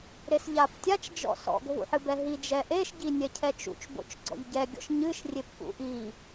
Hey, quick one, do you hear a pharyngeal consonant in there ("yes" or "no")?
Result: yes